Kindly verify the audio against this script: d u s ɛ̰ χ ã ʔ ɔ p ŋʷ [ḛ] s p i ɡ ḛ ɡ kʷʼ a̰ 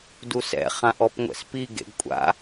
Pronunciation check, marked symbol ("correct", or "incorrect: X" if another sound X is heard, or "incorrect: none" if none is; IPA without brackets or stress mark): incorrect: ɛ̰